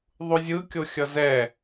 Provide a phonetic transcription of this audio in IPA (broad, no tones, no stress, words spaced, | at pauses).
ðˤuzʲɯkʲo xʲʌzɛ